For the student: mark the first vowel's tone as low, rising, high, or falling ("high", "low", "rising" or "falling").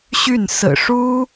falling